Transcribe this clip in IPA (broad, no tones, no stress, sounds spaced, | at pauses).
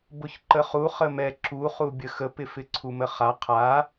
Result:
b ʊ ç ǃ ə χ u χ ə m ɛ ǁ u χ u bʲ ə x ə p ɪ f ɪ ǀʰ u m ə χ a qʰ a